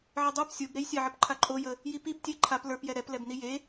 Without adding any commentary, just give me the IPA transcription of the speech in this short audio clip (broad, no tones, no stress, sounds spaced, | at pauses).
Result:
ʕ ə dˤ ə˞ p sʲ o b ɾ e j sʲ ɛ ʕ ə p ǃʰ a ǃʼ o j ə | j i p i b tʲ e ǃʰ a p l ə˞ p j ɛ ɾ ɛ p l ɛ b n i j e